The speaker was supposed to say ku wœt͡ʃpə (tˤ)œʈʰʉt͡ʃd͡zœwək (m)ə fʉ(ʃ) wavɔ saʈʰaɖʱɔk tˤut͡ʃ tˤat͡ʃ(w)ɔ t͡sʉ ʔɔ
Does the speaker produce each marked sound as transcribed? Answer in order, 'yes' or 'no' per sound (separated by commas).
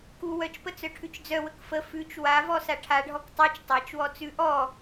no, no, no, yes